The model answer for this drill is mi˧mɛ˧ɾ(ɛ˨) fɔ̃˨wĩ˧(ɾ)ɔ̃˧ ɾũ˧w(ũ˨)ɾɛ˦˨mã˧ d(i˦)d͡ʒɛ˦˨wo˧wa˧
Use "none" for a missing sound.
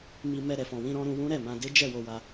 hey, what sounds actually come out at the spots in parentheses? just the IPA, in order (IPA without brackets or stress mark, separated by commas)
ɛ˨, ɾ, ũ˦, e˦